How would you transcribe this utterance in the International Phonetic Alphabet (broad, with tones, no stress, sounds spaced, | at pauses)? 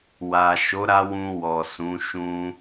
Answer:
w a˨ ʃ o˨˦ ɾ a˧ w ũ˧ w ɔ˨ s ũ˨˦ ʃ ũ˧